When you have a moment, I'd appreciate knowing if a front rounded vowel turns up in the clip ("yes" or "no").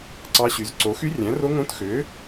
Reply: yes